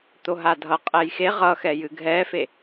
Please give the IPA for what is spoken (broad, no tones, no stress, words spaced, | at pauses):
t̪oɦadʱʌ qʼɛjxe ʁʌxɛjɨ ɡʱɛfe